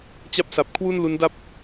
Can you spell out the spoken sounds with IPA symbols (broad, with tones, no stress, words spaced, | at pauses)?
t͡ɕa˥˩p̚sa˨˩p̚ kʰwu˥˩nlu˦˥nda˥˩p̚